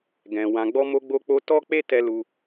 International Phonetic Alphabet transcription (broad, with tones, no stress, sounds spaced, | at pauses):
ɡ ɛ̃˨ w ã˨ ɡ͡b ɔ˧ m o˧ ɡ͡b o˧ k͡p o˧ t ɔ˦ k͡p e˦ t ɛ˧ l u˧